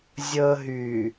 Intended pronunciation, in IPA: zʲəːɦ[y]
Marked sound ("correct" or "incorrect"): correct